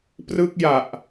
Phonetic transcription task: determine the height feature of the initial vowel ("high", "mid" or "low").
high